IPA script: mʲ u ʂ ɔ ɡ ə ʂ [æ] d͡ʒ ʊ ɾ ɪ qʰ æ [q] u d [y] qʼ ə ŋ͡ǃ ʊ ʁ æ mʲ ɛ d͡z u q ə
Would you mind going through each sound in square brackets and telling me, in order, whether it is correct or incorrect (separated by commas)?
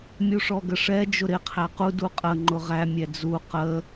incorrect, correct, incorrect